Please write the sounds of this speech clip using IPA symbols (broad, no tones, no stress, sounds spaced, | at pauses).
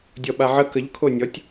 dʲ ɔ ɓ a ʕ ə k ə ʎ kʰ o nʲ ɔ tʲ